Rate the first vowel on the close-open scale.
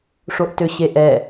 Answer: mid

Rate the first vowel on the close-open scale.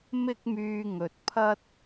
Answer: close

